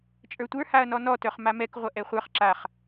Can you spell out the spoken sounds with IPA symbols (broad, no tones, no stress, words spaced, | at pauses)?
t͡ʃʼə˞tʷə˞ haɐ̯nɔnɔ tœχmamɛk ʁʷɐʔɛχʷə˞χ ǁaχ